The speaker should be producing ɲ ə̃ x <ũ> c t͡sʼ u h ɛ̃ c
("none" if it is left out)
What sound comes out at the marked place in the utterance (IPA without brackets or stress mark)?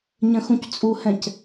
ũ